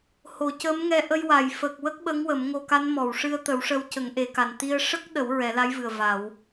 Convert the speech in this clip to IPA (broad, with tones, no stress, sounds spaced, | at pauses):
h o˨˩˨ c ə˧˥ m ŋ ɛ˧ ʔ ə˧ j w a˨˩˨ j f ə˨˩ k̚ w ə˦˥ k̚ ɓ ə˧˥ ŋ w ə˨˩˦ m ŋ o˧ k a˧˥ n m ɔ˨˩˨ w ʂ ɨ˧ ə̯ t̪ ə˨˩˦ w ʂ ə˧ w c ə˨˩˦ ŋ ʔ e˨˩˨ k a˨˩ n t̪ i˧ ə̯ ʂ ə˦˥ k̚ ɗ ə˨˩˦ w ɹ ɛ˨˩˦ l a˧˥ j v ɨ˨˩ ə̯ v a˨˩˦ w